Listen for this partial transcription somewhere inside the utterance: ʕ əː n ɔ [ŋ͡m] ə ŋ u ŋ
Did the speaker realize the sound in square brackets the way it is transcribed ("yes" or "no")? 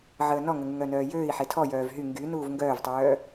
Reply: no